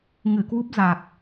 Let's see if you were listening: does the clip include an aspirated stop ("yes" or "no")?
no